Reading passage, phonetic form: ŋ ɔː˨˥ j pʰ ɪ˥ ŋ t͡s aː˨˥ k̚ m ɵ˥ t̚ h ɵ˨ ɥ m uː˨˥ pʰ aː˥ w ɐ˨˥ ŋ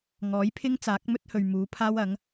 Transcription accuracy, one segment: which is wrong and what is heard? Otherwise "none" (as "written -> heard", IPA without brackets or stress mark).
none